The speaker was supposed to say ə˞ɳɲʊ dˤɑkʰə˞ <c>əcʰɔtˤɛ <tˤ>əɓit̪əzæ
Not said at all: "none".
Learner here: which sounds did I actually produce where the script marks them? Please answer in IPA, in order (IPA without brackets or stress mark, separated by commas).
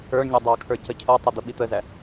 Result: c, d̪